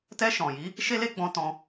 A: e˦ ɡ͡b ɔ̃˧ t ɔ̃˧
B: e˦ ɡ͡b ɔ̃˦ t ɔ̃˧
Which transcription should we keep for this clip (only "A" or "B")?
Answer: A